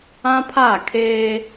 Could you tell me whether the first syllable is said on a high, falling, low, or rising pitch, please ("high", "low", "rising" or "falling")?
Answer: high